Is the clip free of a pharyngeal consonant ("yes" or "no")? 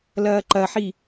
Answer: no